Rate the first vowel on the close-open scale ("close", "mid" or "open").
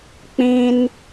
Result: close